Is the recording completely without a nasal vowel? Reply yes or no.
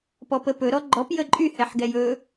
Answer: yes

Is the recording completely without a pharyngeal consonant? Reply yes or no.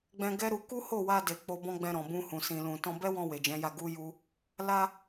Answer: yes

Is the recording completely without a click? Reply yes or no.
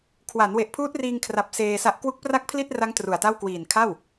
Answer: yes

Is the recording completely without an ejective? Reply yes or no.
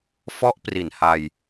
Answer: yes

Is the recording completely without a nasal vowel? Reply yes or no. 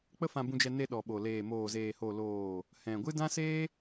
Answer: no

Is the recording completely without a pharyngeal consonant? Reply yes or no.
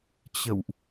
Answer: yes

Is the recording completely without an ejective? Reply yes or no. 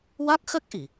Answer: yes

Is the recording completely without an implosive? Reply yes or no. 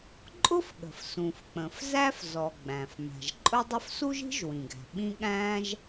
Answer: no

